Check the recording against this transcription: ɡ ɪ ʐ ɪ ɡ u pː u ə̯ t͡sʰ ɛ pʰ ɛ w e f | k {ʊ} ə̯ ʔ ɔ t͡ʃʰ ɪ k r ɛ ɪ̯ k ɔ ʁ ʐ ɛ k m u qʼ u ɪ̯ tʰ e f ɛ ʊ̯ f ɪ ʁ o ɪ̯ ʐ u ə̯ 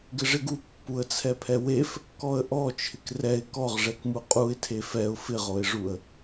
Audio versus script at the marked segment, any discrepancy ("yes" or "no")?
yes